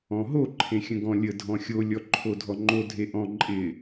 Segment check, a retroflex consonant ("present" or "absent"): absent